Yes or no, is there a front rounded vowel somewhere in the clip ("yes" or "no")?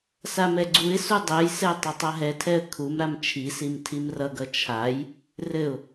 no